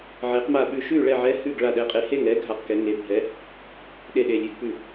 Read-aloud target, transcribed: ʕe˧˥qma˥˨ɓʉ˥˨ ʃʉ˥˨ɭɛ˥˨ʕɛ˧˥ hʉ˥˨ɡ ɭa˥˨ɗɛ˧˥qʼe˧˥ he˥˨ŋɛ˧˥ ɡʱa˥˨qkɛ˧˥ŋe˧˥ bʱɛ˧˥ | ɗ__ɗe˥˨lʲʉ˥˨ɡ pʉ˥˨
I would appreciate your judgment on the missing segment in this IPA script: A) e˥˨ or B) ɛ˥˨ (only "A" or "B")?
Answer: A